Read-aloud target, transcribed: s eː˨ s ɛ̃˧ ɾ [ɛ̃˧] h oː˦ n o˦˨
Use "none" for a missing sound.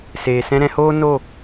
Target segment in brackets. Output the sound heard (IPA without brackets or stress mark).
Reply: ɛ̃˧